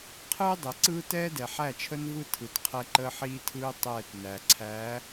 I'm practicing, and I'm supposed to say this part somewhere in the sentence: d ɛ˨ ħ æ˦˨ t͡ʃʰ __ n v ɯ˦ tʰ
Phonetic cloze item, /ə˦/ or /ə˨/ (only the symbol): ə˦